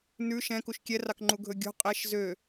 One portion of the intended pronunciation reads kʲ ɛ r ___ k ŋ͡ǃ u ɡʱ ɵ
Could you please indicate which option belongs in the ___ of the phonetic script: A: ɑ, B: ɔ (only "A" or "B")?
A